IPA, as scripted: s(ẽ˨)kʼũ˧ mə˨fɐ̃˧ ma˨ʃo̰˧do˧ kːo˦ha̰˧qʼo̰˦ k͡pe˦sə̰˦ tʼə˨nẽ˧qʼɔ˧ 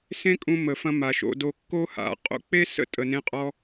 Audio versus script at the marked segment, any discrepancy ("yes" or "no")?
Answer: yes